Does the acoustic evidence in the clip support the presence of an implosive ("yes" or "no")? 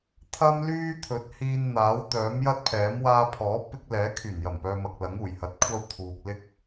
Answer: no